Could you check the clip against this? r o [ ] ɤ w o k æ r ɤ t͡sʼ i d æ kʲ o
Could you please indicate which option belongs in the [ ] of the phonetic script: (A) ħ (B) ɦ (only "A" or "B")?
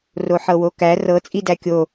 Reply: A